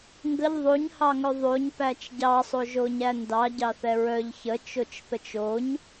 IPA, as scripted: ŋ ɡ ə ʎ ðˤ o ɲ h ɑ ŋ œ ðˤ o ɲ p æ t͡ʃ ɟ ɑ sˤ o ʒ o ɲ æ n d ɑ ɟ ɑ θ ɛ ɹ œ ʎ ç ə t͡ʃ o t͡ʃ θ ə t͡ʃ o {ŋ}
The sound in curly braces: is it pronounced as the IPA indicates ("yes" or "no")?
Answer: no